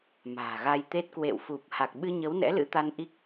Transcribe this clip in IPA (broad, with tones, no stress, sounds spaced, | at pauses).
m a̤ː˨˩ ɣ a˧ j t̪ e˦˥ t̚ k w ḛ˧˨ w f u˨˩ p̚ h a˨˩ k̚ ɓ ɨ˧ ɲ ə˨˦ w n ɛ̰˧˥ l ɨ̰˧˥ t̪ a˧ n ʔ i˦˥ k̚